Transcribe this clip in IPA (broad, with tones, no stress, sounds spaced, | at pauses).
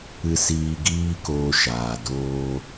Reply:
ɨ˧ s iː˧ ɡ iː˦ k oː˧ ʃ aː˨ d oː˧